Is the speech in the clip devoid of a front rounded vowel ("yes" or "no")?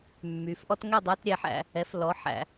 no